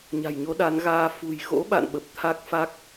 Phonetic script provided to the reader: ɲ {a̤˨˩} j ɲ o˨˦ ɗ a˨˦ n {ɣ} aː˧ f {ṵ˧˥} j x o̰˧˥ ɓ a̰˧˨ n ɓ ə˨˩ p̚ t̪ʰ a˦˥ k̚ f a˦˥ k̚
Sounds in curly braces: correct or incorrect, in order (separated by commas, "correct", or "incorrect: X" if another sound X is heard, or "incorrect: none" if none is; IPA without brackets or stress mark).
correct, correct, incorrect: ṳ˨˩